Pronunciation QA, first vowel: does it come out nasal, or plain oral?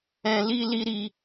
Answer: nasal